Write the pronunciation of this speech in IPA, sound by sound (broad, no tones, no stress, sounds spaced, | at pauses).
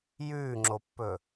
j ʉː ŋ͡ǁ o pː ɵ